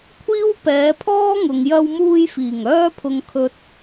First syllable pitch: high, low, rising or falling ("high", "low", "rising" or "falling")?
high